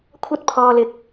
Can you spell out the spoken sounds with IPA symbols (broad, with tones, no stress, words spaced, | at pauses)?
kʷʰɐ˥t̚pʰɔː˧lɪ˧k̚